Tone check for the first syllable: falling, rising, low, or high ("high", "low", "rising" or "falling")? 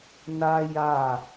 high